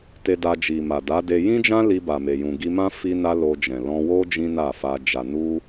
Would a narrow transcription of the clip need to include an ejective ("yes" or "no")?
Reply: no